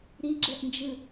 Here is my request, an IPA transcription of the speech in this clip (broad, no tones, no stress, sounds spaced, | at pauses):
ɾ i ɡ͡ǁ ɛ ʔ n d͡ʒ ɯ